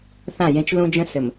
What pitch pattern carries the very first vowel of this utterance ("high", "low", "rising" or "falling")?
falling